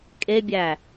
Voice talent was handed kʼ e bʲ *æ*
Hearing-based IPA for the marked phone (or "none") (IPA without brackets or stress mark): æ